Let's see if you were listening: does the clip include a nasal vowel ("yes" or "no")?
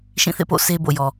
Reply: yes